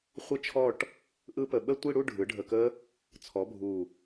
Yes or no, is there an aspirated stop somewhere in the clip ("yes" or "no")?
yes